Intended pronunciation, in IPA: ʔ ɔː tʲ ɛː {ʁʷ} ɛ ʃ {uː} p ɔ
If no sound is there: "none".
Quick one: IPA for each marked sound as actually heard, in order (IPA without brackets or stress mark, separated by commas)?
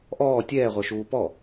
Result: ʁʷ, uː